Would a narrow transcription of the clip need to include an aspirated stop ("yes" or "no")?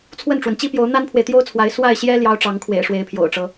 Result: yes